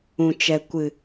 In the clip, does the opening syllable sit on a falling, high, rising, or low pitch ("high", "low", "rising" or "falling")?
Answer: low